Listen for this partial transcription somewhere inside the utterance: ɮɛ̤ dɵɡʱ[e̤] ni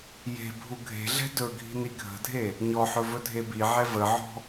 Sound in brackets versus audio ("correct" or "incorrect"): incorrect